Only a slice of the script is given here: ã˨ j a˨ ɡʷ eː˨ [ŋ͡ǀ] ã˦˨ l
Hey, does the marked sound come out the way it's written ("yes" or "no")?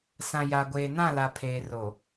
no